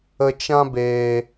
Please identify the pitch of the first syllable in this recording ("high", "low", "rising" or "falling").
low